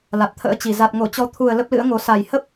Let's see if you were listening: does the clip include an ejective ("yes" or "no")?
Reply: no